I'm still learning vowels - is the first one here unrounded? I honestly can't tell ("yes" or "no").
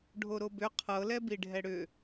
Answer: no